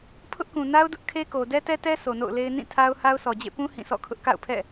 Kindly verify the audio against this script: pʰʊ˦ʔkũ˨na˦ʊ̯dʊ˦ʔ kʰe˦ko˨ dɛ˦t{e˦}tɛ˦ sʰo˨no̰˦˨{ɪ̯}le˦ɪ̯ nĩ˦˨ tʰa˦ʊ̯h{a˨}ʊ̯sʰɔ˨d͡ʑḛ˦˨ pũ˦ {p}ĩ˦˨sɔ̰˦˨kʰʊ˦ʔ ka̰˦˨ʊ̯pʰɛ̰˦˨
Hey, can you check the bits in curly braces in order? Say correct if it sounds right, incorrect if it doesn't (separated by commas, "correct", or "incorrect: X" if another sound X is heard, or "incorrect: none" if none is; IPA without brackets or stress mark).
incorrect: ɛ˦, incorrect: ʊ̯, incorrect: a˦, incorrect: h